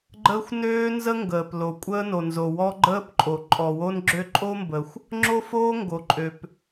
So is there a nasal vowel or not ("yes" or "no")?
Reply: no